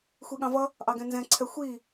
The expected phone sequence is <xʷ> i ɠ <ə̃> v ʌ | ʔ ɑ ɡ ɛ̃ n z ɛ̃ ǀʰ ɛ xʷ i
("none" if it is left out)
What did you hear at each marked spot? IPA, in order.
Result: xʷ, ɑ̃

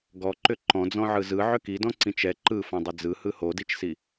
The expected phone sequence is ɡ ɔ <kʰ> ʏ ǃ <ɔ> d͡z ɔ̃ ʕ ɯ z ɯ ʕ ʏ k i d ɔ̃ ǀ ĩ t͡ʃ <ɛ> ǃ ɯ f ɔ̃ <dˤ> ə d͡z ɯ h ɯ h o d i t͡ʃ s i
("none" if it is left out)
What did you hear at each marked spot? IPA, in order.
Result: ǃ, ɔ̃, ɛ, dˤ

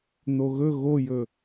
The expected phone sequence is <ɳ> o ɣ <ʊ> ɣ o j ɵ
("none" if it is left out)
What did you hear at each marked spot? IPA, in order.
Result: n̪, ɵ

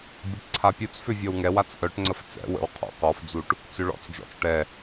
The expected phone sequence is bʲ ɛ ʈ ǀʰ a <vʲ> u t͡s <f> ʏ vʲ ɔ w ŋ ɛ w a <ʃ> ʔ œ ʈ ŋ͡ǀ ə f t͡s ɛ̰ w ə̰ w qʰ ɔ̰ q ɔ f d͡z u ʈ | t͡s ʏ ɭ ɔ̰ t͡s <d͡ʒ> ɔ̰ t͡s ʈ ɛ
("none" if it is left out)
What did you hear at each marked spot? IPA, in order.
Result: pʲ, f, t͡s, d͡ʒ

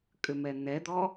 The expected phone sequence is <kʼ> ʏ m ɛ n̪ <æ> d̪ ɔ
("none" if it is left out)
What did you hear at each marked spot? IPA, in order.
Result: kʼ, ɛ

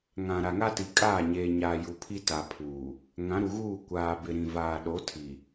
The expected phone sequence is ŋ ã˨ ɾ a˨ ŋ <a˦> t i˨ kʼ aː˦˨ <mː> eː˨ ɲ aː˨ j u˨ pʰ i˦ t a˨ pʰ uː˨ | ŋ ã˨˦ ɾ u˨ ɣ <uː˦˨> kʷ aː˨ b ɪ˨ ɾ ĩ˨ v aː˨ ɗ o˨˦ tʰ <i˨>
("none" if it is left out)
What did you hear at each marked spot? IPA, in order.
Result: a˦, ɲ, uː˦˨, i˨

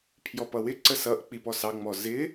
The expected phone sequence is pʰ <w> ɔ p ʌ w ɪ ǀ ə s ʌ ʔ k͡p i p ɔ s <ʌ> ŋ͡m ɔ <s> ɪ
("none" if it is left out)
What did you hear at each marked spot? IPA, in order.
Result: j, ɑ, z

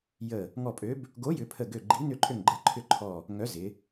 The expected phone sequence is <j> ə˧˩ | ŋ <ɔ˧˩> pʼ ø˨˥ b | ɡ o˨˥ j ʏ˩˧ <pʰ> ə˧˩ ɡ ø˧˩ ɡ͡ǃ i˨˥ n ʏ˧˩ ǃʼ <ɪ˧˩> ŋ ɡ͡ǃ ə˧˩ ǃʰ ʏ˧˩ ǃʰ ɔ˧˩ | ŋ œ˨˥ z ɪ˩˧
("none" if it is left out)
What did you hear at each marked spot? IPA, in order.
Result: j, ɔ˧˩, pʰ, ʏ˧˩

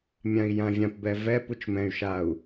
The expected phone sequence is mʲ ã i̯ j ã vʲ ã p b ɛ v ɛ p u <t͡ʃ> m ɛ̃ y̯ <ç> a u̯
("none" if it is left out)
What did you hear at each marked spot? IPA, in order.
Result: t͡ʃ, ʃ

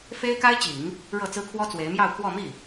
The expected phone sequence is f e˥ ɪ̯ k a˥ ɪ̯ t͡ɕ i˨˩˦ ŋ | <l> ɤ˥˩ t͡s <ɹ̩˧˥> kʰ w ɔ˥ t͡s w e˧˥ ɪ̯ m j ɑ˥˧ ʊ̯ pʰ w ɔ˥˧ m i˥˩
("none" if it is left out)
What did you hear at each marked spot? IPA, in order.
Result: ɻ, ɹ̩˥

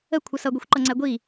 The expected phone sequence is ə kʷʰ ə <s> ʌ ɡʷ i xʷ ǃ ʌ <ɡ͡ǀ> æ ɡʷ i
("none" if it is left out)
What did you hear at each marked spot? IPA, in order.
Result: s, ŋ͡ǀ

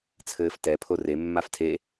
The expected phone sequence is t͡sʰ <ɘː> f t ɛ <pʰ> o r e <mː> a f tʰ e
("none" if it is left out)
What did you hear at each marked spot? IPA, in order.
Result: ɘː, pʰ, mː

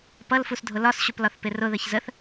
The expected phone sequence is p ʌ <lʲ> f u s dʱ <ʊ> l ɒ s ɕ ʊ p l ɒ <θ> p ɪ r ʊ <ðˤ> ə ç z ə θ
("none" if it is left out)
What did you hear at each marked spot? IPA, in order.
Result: l, ʊ, θ, ð

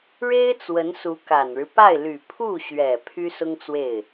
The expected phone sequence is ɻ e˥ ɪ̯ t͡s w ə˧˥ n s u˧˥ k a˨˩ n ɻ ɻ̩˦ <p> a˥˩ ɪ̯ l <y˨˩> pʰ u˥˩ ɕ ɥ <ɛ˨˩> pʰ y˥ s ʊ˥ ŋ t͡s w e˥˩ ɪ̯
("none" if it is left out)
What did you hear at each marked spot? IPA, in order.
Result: p, y˨˩, ɛ˨˩

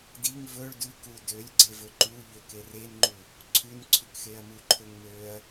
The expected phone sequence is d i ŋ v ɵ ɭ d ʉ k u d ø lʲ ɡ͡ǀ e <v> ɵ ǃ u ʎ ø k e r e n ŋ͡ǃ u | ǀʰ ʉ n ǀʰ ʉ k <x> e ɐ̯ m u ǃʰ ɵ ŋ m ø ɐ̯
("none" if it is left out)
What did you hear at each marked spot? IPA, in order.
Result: v, x

